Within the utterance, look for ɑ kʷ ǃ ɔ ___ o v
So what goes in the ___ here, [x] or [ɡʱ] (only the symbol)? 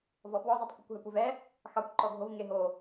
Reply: ɡʱ